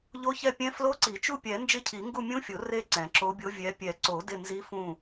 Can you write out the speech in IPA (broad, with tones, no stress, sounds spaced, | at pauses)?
ʎ o˧˥ ç ɛ˦˨ pʲ ɛ̃˧˥ f l o˧˥ ǀ i˨˩˦ t͡ʃ u˦˨ pʲ ɛ˨˩˦ n d͡ʒ ɪ˧˥ cʰ i˨˩˦ ŋ ɡ u˦˨ mʲ ũ˧˥ fʲ o˨˩˦ r e˦˨ ǀ ɛ̃˨˩˦ ǁ o˧˥ bʲ o˧˥ vʲ ɛ˧˥ pʲ ɛ˨˩˦ ǀ o˨˩˦ d ɪ˦˨ n z i˧˥ f ũ˦˨